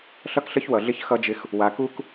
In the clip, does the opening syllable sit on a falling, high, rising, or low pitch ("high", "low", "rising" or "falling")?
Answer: high